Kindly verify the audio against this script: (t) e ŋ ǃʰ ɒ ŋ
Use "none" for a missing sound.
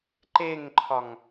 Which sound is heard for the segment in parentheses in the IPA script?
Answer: ǃ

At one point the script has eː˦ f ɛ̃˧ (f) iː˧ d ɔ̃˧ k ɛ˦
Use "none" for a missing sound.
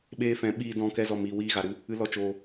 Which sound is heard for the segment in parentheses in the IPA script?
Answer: ɓ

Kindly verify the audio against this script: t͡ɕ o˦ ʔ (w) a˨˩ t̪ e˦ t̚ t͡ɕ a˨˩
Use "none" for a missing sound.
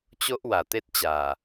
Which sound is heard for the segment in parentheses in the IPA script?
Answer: w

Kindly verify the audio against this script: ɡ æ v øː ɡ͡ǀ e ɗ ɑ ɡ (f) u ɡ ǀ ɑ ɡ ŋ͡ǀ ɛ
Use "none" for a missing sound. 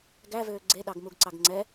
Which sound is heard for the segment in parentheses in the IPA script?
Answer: m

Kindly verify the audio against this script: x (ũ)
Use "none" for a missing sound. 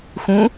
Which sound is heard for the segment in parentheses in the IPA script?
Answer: ũ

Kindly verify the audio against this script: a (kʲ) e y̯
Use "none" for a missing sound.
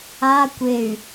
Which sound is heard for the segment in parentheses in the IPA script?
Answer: kʷ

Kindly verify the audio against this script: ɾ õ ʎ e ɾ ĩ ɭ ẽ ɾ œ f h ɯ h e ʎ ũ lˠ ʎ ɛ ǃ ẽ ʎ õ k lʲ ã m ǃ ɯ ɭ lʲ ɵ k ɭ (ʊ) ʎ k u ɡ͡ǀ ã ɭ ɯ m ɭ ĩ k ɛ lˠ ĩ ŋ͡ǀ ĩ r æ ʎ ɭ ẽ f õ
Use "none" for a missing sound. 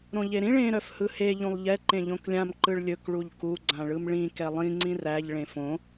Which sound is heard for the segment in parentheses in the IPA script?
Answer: u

